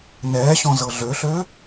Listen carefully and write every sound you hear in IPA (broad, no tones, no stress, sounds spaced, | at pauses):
n ɛː ɕ ɔ̃ z ɤ ɮ ø ɬ ø